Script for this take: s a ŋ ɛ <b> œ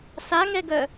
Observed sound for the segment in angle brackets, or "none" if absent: ɡ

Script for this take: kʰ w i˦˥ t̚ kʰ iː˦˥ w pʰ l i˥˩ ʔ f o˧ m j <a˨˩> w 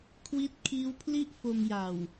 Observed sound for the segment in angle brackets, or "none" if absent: a˨˩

